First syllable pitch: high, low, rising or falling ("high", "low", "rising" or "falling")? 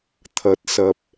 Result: rising